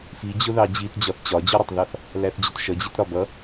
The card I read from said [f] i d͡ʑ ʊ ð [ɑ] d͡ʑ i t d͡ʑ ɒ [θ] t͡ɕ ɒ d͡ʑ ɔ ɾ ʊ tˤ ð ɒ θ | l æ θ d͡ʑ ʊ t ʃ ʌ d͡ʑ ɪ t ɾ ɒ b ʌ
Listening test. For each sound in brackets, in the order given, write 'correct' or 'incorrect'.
correct, correct, correct

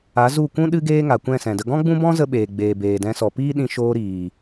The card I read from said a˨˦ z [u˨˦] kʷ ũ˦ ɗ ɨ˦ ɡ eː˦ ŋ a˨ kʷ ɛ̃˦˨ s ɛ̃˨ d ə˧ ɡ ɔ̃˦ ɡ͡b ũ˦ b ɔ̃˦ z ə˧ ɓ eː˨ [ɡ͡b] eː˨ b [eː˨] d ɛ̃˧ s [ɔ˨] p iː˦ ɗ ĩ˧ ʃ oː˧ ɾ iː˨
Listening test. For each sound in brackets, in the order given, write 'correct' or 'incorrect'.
incorrect: u˦˨, correct, correct, correct

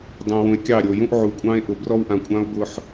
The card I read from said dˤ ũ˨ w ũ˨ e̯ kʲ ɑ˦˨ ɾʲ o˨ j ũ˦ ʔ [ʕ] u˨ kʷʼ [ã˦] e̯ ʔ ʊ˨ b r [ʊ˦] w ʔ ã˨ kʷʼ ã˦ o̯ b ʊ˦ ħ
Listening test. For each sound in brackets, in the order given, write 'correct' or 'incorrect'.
correct, incorrect: ɑ̃˦, incorrect: ɔ˦

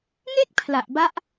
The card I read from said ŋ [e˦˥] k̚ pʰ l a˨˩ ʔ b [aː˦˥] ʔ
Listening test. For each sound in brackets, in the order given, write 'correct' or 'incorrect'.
incorrect: e˥˩, incorrect: a˦˥

